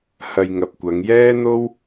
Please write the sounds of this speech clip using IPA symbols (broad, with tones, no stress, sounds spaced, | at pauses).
h ɐ˧ j ŋ ɐ˨ p̚ kʷ ɐ˨˧ ŋ j ɛː˥ n̪ o˥ w